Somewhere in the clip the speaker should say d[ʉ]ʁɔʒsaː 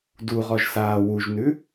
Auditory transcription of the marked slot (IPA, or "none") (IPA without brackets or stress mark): u